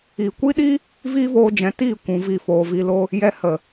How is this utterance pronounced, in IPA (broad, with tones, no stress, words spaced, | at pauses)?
iː˨kʷi˦ɗi˦ | viː˦voː˧d͡ʒɛ̃˨˦ tiː˦˨ kʷũ˧vi˦˨foː˧ vi˧lo˦ | jɛ˧hə˨